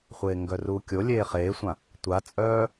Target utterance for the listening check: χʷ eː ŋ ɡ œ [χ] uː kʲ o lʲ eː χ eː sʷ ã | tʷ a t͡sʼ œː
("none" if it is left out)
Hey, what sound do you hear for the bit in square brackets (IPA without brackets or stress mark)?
r